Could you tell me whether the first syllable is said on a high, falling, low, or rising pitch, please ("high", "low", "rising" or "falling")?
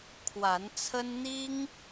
rising